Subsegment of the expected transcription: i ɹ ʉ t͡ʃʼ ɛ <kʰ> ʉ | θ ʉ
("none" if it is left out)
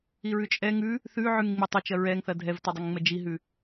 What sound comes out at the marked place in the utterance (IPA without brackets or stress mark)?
ŋ